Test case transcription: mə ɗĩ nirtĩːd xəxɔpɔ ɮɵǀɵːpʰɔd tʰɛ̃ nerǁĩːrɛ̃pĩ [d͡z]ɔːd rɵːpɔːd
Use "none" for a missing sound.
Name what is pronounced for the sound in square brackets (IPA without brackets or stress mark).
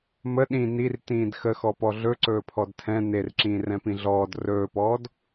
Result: ɮ